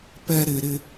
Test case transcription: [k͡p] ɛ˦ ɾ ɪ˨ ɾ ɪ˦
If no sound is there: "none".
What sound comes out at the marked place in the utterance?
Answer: p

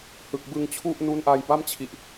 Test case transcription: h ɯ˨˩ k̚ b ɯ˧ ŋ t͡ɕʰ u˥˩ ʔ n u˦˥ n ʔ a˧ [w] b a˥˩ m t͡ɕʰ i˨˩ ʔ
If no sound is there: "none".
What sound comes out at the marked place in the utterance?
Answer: j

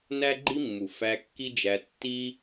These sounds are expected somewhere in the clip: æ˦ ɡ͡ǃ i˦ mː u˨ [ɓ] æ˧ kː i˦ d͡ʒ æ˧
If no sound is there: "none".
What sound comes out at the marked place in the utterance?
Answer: f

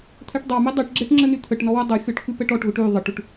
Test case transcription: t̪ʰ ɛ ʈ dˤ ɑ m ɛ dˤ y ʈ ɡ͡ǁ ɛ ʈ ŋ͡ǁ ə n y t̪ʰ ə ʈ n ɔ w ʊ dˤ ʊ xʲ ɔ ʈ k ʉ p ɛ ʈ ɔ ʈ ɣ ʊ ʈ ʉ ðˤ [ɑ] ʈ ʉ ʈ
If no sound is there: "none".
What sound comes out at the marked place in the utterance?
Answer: ə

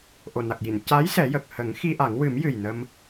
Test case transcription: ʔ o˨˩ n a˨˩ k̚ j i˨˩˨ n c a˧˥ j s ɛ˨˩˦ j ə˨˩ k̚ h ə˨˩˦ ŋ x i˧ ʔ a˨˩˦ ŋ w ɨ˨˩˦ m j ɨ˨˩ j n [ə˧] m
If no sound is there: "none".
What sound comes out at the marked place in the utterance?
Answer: ə˧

